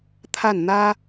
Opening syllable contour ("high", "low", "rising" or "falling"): falling